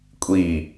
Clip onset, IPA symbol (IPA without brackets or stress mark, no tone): kʷʼ